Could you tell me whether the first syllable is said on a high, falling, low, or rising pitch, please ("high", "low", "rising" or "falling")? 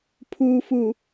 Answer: low